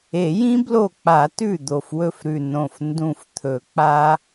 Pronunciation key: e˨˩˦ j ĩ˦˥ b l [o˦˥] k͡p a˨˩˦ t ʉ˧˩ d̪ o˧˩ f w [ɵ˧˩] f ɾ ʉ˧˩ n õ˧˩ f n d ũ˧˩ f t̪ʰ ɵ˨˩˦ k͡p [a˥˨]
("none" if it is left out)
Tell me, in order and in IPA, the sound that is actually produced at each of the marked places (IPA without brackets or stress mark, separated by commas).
o˧˩, ɵ˥˨, a˦˥